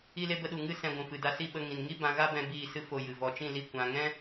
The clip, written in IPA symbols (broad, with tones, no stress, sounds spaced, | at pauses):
i˦ l e˦ b ə˦ ɗ u˧ ŋ ɨ˦ s ɛ̃˧ ɡʷ ũ˨ f ɨ˨ d a˧ s i˦˨ ɓ ə˧ ŋ ĩ˨ n ŋ i˦ b ã˧ ɣ a˦ b ɛ̃˧ b iː˦˨ s ɨ˦ f o˧ j ɨ˨ v ɔ˨ t͡ʃ ĩ˦˨ l i˧ kʷ ã˨ ŋ ɛ̃˦